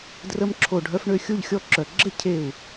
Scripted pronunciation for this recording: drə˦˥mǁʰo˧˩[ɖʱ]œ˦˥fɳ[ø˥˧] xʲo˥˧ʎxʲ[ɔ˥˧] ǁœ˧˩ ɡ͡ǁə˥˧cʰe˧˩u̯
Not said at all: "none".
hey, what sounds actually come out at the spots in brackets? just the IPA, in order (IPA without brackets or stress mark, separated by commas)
ɖʱ, ø˥˧, ɔ˦˥